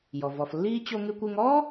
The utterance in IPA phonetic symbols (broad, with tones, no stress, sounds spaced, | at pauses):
j ɔ˩ v ɔ˩ f lː iː˥ t͡ɕ o˧ ŋ ʉ˧ kʷ ʉ˧ ŋ ɔ˥